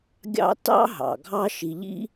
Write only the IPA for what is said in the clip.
ɡʲ ɑ̰˦ t ɑ̰˦ ɦ ɑ̰˨ ɡʱ ɑ˦ ʃ i˨ ʎ ḭ˦

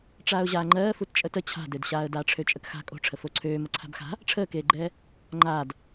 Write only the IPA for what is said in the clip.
ʈ͡ʂ aː ʊ̯ ʑ aː ŋ͡ǃ ɜː f u t t͡ʃʼ ə t ə t͡ɕʰ a̤ d ø d ɕ aː ə̯ d aː ʈ͡ʂʰ ø t͡ʃʼ ə k x a̤ kʼ o̤ ʈ͡ʂʰ ə f o ǀʰ øː m ə ǀʰ a̤ b x a̤ | ʈ͡ʂʰ əː k eː ɡ͡ǃ ɛː | ŋ͡ǃ aː d

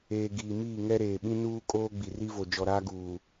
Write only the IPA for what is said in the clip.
eː˨ ɡ iː˨ m iː˦˨ ŋ ɛ˦ ɾ eː˨ ɓ ĩ˦ n uː˦ kʼ oː˦ ɡ͡b i˨ r i˦ v o˨ d͡ʒ ɔ˨ ɾ aː˦ ɡ uː˨

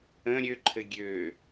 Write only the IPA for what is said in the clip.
ə̃ ɾʲ ø ǃʰ ɘ ɡʲ ø

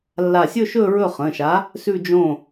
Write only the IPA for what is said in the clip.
lː a˧˩ sʲ ɵ˥˧ ʃ ɵ˥˧ ɹ ɵ˥˩ χ ə̃˩˧˩ ʃ a˨˥ | s ʉ˥˧ d͡ʒ õ˥˩

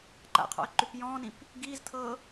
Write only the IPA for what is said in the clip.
ǃ a̰ qʰ ɔ̰ ə̯ ǃ ʉ p j ɔ̃ː n ĩ p | ɡ iː z tʰ ɤː

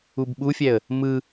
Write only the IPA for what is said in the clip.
u b ɓ u fʲ ɛ ə̯ | m ɯ

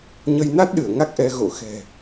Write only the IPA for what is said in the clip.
ɲ ə˧ j n a˦˥ t̚ ɗ ɨ˧˩ ə̯ ŋ a˦˥ k̚ ʔ ɛ˧ ɣ o̰˧˨ x ɛ̤˨˩

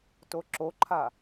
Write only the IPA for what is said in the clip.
t o ǁ o ǃʰ a

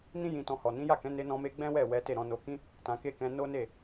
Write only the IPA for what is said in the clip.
n ĩ˦ j ĩ˧ t ɔ̃˧ h ɔ˨ n ĩ˨˦ j a˦˨ k ɛ̃˨˦ n e˧ n ɔ̃˧ m e˧ ɡ͡b ɛ̃˦ w ɛ˦˨ w ɛ˨˦ t e˦˨ ɾ ɔ̃˨˦ n o˧ k ĩ˦ | t ã˧ k e˦ k ɛ̃˧ n o˦ n e˦˨

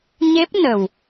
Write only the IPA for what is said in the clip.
ɲ e˦˥ p̚ n ə˨˩ w

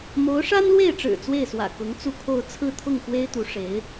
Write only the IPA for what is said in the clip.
m o˧˥ ʊ̯ ʂ a˥ n l w e˥˩ ɪ̯ ʈ͡ʂ ɻ̩˨˩ t͡s w e˥˩ ɪ̯ s w ä̰˨˩ k ʊ˧˥ ŋ t͡s u˥˧ kʰ o˥˧ ʊ̯ t͡sʰ ɹ̩˥˧ t̪ʰ ʊ˥˩ ŋ x w e˥ ɪ̯ t̪ u˧˥ ʂ e˧˥ ɪ̯

